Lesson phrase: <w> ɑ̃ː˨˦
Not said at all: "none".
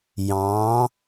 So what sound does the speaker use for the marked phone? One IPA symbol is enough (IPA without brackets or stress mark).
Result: j